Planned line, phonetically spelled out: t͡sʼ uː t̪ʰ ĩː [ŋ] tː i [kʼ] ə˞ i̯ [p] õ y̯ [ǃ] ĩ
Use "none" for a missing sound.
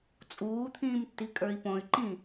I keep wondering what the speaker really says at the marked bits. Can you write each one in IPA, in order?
m, kʼ, p, ǃ

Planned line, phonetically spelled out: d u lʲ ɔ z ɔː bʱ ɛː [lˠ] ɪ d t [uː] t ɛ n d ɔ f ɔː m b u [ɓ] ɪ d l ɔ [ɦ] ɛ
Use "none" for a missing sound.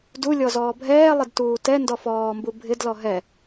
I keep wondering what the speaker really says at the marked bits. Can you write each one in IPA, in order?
lˠ, uː, bʱ, ɦ

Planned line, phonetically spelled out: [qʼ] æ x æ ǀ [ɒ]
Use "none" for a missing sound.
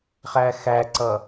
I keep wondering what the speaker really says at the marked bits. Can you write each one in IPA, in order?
χ, ʌ

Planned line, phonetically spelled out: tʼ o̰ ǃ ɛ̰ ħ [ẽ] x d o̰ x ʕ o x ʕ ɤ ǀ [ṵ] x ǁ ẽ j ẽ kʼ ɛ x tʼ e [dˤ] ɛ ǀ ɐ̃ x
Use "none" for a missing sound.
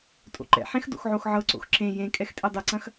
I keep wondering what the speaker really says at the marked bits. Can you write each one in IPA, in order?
ẽ, o̰, dˤ

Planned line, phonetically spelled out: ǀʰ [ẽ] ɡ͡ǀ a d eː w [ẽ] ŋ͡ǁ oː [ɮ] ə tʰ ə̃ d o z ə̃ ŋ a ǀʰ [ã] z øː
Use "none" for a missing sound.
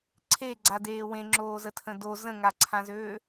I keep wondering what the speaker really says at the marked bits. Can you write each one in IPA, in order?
e, ẽ, z, ã

